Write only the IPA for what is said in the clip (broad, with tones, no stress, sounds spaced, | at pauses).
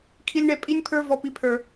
kʰ i˦ lʲ ɳ ɛ˦ pʼ i˦ nʲ pʰ ə˞˦ v ɔ˦ p i˦ pʰ ə˞˦